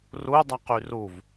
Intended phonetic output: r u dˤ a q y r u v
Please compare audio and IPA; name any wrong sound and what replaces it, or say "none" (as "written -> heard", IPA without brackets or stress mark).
none